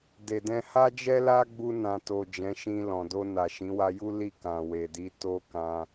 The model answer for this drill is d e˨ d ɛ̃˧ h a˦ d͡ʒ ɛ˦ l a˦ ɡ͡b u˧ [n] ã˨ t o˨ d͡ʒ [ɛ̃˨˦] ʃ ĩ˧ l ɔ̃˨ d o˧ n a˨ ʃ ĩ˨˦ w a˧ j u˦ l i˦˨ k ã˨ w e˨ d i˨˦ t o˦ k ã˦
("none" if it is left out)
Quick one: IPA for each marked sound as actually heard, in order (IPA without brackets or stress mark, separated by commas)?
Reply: n, ɛ̃˨˦